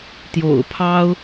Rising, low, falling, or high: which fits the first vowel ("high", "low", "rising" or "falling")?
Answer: low